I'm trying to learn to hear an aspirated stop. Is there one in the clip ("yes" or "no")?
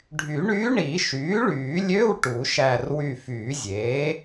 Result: no